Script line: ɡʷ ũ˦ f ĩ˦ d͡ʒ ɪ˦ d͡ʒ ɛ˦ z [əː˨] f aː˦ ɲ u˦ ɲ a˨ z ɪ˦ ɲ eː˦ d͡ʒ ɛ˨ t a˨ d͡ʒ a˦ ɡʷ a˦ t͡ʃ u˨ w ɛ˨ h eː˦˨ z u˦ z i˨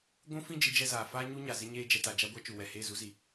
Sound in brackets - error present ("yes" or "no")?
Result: yes